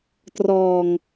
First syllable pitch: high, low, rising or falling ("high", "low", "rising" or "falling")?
low